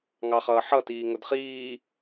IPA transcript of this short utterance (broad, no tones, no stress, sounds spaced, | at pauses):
ŋ ɑ χ ʌː ħ ʌ t iː ŋ ʊ d χ iː